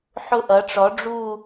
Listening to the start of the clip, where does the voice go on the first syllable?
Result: falling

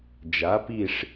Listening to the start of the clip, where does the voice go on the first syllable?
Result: rising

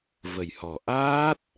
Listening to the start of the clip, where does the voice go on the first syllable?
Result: low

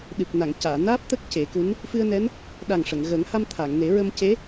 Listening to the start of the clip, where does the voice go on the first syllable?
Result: low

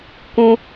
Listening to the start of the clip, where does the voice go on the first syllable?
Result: high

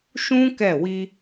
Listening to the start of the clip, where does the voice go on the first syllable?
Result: high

